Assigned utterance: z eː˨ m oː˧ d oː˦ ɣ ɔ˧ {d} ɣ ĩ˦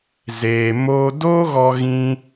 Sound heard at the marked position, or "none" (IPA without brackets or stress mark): none